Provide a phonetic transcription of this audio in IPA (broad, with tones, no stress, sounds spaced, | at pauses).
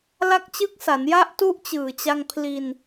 l a˦˥ k̚ t͡ɕ ɯ˦˥ k̚ s a˩˦ n j a˦˥ ʔ t u˦˥ ʔ t͡ɕ ɯː˨˩ t͡ɕ a˧ ŋ pʰ l i˧ n